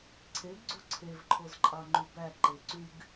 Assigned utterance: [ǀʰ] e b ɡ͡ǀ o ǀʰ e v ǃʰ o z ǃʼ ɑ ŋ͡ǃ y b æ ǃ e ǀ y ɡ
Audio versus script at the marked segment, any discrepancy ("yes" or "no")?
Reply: no